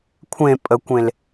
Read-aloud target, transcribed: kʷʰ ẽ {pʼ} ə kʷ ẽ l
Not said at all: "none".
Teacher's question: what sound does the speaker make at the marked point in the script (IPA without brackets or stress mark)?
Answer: pʼ